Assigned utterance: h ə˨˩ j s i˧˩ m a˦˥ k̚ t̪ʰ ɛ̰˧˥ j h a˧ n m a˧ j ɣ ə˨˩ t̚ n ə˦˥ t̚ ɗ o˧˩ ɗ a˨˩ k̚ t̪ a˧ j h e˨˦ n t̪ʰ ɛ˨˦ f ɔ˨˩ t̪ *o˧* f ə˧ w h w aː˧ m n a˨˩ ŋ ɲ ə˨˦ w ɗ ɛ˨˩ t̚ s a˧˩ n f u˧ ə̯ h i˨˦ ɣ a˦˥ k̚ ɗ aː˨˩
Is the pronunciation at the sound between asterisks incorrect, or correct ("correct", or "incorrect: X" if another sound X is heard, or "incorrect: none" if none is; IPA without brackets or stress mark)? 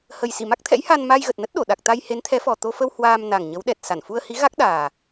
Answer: correct